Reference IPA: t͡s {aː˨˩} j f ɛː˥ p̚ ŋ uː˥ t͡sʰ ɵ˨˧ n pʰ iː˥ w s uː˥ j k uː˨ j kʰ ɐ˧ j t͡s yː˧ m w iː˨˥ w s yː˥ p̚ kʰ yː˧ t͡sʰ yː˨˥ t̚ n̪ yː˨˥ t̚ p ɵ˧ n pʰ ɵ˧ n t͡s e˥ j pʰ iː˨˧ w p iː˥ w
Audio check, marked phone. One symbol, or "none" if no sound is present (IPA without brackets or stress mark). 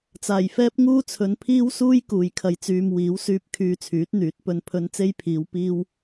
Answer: aː˨˩